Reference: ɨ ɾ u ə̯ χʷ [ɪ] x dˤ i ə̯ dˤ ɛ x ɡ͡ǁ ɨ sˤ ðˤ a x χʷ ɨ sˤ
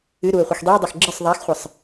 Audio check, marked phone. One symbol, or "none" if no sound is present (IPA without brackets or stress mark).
ɨ